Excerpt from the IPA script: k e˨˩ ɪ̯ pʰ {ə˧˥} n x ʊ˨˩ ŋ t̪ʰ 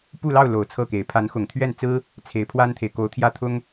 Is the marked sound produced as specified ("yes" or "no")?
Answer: no